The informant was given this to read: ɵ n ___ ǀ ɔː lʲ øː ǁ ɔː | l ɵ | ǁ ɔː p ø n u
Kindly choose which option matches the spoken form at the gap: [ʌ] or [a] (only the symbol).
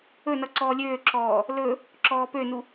ʌ